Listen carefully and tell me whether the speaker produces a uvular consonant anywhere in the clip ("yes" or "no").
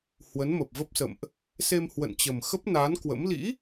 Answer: no